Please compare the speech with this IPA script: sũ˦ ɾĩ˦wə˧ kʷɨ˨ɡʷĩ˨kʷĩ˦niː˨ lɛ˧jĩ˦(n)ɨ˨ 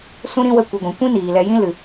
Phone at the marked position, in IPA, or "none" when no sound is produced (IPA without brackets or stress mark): l